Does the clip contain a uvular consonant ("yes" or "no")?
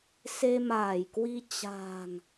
no